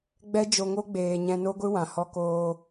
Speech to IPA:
ɡ͡b ɛ˦ d͡ʒ o˧ ŋ o˦ ɡ͡b eː˧ ɲ ɛ̃˧ n o˦ ɡʷ ɨ˦ w ã˨ h ɔ˧ k oː˧

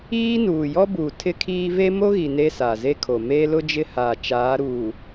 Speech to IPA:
iː˦ n uː˨ j ɔ˦ b uː˨ tʰ ɪ˦ kʰ iː˦ v e˦ m o˦ ɣ i˨ n e˦ s a˨ z e˦ kʰ o˨ m eː˦ l ʊ˦ d͡ʒ ɪ˦ h aː˨ t͡ʃ aː˨˦ ɾ uː˨

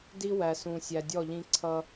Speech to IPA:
d i˦ w æ˨ s ũ˨ sʲ æ˨ dʲ ɔ˦˨ ʎ ĩ˦ ǀʰ ʌ˦

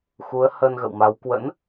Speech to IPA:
x u˨˦ ə̯ h ə˧ n ɣ ə̰˧˨ w m a˨˦ w k w ə̰˧˥ n

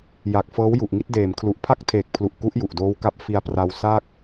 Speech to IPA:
j a˨˩ k̚ f ɤː˦˥ w j u˨˩ ʔ ŋ i˦˥ t̚ d eː˨˩ m kʰ l u˨˩ ʔ pʰ a˥˩ k̚ tʰ eː˨˩ k̚ pʰ l u˨˩ ʔ k u˦˥ ʔ j u˨˩ ʔ d oː˦˥ w k a˦˥ p̚ f i˧ a̯ p r a˧ w s a˥˩ k̚

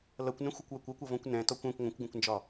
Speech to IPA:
l ʌ kʷ n ə̃ xʷ ə kʷ w ɐ kʷ ʌ kʷ ʌ v ɔ̃ kʷ n ɛ̃ t ɔ kʷ ɛ̃ kʷ ŋʷ ə̃ kʷ ɡ ə̃ kʷ n d͡ʒ ɒ

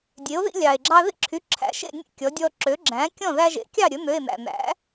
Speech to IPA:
dʲ e˩˥ o̯ ð ḭ˦ lʲ ɑ˩ e̯ ɡ͡ǁ ɑ˦ ð ḭ˥˩ ǁʰ y˩˧˩ ǁʰ æ̰˩˥ ʃ ḛ˥˩ nʲ ḛ˥˩ kʲ ɔ˩˥ dʲ ɔ˦ ǁ ø˩˥ ɡ͡ǁ æ̃˩˥ kʲ ɔ̃˥˩ ð æ˦ ʒ ḛ˩˥ kʲ ɑ˥˩ ɾʲ ɵ˩˥ n̪ ø˩˧˩ e̯ n̪ æ̰˩ n̪ æ̰˩˥

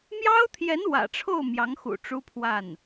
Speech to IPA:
m j ɑ˥ ʊ̯ t̪ʰ j ɛ˧˥ n w ä̰˨˩ ʈ͡ʂʰ o˥˩ ʊ̯ m j ɑ˧˥ ŋ x ṵ˨˩ ʈ͡ʂ u˥ pʰ w a˥˩ n

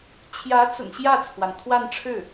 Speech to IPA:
t͡ɕʰ j ä˧˥ t͡s ʊ̰˨˩ ŋ ɕ j ä˥˩ t͡sʰ w a˩ n t̪ʰ w a˥˧ n ʈ͡ʂʰ ɻ̩˥˩

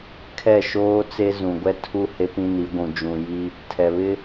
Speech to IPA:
kʰ ɛ˦˨ ʃ oː˦ t͡s e˦ z ũ˨ ɡʷ ɛ˦ tʰ u˦ h e˦ p ĩ˦ n i˨˦ ɡʷ ũ˨ d͡ʒ ũ˨ j i˦ | tʰ ɛ˨ β ɪ˦

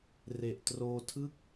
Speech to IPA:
r e˨˩ ʔ t r oː˧ tʰ ɯ˥˩ k̚

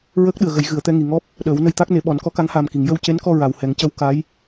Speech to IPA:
ɹ əː˦˥ k̚ ɗ ɨ˨˩ ə̯ ɣ ə˨˩˦ j ɣ ɨ˨˩˨ ə̯ t̪ ɛ˧ ŋ i˨˩ ŋ ɔ˦˥ p̚ | ɗ əː˨˩˦ w n ə˧ j t̪ a˦˥ k̚ n e˨˩˦ ɓ ɔ˨˩˦ n k ɔ˧˥ k a˧˥ ŋ h aː˨˩ m k i˨˩˨ ŋ j ə˧ w c e˧˥ n k ɔ˧ ɹ a˨˩ w h ɛ˨˩˦ ŋ c ə˧˥ w k a˧˥ j

